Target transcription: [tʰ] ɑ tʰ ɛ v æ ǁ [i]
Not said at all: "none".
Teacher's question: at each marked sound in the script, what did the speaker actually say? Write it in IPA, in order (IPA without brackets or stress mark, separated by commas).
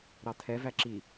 ɾ, i